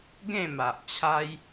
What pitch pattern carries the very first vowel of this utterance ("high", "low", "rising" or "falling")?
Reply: falling